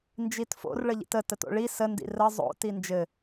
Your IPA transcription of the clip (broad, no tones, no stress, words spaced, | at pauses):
nd͡ʒitfo̰r ɭəʎḭtə təto̰ɭi səndḭ rə zˤo̰ tind͡ʒɘ